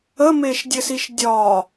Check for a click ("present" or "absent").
absent